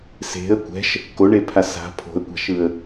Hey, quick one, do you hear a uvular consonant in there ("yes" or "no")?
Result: no